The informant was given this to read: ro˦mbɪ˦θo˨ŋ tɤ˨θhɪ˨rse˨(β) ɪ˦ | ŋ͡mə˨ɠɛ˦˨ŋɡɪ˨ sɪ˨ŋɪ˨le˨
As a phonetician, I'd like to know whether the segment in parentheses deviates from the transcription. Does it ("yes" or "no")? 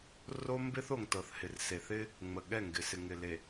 yes